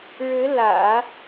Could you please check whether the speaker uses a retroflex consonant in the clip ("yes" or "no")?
yes